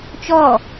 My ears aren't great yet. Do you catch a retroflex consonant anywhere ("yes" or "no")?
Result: no